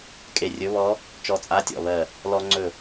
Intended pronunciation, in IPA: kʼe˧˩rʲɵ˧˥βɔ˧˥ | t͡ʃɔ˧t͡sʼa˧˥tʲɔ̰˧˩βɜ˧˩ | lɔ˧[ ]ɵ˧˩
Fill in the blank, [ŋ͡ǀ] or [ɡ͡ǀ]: ŋ͡ǀ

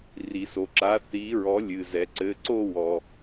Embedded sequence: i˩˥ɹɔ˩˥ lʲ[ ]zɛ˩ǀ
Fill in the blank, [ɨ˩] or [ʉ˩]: ɨ˩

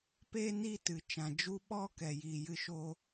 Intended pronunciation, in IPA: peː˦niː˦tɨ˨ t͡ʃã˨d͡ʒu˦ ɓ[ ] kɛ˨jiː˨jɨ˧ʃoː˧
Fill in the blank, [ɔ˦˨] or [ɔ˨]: ɔ˦˨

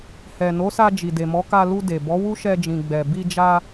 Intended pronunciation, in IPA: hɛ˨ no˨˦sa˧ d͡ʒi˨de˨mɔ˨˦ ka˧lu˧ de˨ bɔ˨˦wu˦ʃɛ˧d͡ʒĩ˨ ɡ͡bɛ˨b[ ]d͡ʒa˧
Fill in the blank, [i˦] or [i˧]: i˧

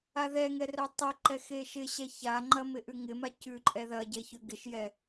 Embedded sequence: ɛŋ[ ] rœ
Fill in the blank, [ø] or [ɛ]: ɛ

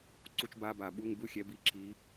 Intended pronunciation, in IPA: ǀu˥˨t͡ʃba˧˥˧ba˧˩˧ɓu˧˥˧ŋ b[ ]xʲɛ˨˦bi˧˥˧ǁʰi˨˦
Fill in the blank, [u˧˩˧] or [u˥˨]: u˥˨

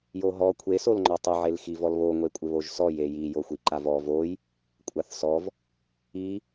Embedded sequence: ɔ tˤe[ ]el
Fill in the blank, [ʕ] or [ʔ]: ʕ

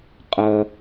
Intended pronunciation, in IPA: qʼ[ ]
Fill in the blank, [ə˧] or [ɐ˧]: ɐ˧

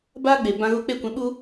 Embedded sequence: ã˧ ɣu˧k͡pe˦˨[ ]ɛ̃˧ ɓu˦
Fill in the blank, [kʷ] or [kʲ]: kʷ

